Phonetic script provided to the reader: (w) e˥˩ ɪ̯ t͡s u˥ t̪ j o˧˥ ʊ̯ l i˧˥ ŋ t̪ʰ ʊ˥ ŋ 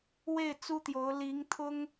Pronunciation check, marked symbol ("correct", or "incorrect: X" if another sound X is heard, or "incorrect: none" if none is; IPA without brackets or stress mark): correct